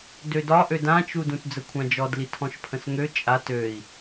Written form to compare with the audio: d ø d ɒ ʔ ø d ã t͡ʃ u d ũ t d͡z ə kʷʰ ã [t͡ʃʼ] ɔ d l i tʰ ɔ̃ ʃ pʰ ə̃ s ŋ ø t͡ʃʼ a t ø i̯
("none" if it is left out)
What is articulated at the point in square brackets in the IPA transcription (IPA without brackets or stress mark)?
d͡ʒ